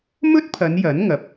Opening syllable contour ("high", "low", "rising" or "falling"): high